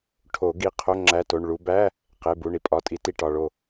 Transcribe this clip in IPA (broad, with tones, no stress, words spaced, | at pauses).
ʈʰo˨˩˦ ɡi˩˧˩qʰo˧˥˧ ŋ͡ǁæ˧˥˧to˩˧˩ɳ ɭu˨˦ bæ˧˥˧ | qe˩˧˩bu˩˧˩ɳi˨˩˦ pʼɒ˩˧˩tʼi˨˩˦ti˩˧˩ ʈɒ˩˧˩ɭo˥˩